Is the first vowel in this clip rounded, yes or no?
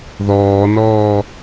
yes